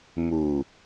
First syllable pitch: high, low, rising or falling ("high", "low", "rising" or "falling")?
low